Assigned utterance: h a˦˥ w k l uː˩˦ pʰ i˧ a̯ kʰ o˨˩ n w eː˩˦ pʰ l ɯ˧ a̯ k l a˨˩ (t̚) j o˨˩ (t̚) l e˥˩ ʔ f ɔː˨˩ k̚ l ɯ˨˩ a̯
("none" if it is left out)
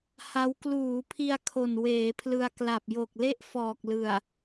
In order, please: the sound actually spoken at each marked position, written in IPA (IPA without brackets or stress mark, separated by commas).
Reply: p̚, k̚